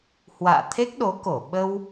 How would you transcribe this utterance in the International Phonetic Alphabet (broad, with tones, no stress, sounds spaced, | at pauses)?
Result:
h w a̰ː˧˨ t̪ʰ e˦˥ k̚ ɗ o˨˦ k o˧˩ ɓ ə˧ w